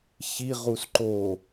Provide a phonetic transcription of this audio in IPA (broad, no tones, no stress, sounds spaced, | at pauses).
ç i ʁ u s ǃ o